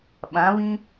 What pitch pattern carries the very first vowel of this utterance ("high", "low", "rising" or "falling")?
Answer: rising